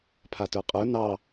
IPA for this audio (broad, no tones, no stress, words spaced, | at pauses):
pʰatə˞qʼə˞ nɑ